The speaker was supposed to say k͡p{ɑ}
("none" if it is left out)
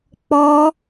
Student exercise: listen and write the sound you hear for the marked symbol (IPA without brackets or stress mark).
ɔ